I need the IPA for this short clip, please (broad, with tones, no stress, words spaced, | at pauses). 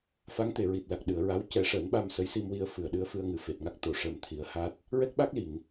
fa˧˥ŋt̪e˨˩˨ ɹi˨˩t̚la˨˩k̚ɗɨ˨˩˨ə̯ɹa˧˥w cɛ˨˩˦ʂəː˨˩˦nɓa˧m sə˧˥jsi˧mwi˧ə̯ fɨ˨˩˨ə̯ɗɨ˧˥ə̯fɨ˧ə̯ŋɨ˨˩ fe˨˩t̚ŋa˦˥k̚ t̪o˨˩˨ ʂəː˨˩mt̪ʰi˨˩˦ə̯haː˦˥t̚ | ɹɛ˦˥k̚ɓa˦˥k̚li˨˩˨ŋ